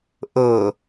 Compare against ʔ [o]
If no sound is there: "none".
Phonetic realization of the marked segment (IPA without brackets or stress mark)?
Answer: ɤ